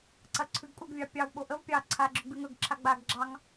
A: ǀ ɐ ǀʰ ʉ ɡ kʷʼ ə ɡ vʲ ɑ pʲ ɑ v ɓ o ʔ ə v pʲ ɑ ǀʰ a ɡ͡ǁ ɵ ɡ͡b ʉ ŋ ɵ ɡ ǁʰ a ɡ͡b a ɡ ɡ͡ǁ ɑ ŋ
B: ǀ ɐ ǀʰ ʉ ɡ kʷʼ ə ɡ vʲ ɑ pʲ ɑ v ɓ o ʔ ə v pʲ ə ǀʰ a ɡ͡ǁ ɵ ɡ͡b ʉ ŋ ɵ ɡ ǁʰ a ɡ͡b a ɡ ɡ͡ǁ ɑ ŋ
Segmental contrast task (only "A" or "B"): A